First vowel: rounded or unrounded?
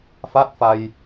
unrounded